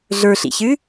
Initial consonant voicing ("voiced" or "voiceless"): voiced